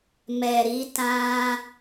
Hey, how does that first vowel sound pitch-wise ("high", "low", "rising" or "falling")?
low